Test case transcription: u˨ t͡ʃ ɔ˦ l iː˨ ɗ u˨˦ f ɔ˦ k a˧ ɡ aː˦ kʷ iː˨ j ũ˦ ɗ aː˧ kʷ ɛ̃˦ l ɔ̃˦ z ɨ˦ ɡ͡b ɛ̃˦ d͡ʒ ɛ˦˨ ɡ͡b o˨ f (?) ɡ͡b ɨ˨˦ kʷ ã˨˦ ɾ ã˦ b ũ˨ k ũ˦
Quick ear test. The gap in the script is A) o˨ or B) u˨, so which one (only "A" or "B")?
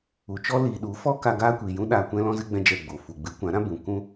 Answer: B